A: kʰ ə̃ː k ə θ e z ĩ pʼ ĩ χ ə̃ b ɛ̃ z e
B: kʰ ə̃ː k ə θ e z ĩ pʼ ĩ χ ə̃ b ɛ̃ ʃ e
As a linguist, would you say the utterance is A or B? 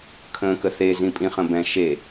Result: B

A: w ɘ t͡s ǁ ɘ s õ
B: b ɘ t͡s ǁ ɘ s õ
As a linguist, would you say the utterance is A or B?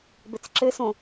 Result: B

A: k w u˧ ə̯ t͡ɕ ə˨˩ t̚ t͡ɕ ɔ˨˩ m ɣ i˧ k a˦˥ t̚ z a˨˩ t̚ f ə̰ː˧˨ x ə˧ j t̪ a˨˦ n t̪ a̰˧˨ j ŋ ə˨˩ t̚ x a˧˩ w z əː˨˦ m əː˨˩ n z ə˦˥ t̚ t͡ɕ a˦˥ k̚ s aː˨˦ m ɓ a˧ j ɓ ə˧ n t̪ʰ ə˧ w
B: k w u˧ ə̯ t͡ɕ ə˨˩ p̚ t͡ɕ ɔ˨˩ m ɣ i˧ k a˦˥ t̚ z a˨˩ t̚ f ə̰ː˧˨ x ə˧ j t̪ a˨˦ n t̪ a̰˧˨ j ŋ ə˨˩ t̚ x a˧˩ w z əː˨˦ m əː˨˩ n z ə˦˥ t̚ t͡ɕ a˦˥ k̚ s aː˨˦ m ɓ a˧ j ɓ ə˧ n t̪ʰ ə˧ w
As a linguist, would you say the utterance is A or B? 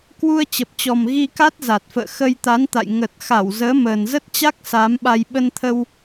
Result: B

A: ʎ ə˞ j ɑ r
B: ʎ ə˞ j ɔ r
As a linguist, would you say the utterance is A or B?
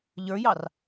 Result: A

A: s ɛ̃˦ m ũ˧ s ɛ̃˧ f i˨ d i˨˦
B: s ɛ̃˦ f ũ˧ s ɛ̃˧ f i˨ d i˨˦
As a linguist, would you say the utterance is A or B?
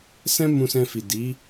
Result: A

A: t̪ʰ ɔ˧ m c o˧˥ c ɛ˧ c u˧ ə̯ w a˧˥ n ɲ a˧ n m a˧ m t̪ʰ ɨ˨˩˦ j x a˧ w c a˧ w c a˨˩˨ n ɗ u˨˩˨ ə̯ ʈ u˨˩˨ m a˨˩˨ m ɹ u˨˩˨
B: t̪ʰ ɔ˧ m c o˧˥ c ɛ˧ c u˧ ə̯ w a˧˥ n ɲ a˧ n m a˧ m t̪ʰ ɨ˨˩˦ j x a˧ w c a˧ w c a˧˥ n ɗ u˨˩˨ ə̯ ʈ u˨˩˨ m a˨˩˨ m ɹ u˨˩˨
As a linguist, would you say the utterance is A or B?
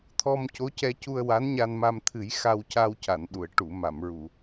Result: A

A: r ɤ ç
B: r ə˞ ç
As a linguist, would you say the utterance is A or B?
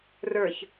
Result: B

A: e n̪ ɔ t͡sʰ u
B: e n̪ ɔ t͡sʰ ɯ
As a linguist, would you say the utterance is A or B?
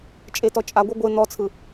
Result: B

